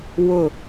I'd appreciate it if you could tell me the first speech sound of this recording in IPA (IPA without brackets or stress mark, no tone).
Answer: w